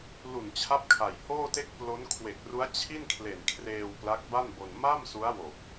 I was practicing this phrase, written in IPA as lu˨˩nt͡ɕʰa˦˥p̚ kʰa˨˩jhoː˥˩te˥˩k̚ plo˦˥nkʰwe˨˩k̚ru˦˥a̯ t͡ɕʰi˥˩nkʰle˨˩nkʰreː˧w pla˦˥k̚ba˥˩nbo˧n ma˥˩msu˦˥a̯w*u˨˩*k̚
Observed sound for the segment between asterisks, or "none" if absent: o˨˩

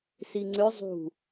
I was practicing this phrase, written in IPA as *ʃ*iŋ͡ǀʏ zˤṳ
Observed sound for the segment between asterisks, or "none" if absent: s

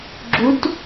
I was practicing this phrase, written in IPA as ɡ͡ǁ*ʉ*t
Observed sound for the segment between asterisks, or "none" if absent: u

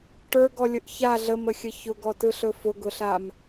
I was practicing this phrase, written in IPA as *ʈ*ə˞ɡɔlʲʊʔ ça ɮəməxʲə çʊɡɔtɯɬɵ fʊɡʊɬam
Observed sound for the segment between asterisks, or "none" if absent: ʈ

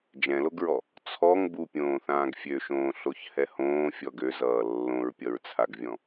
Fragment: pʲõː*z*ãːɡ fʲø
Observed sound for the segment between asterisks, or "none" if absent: θ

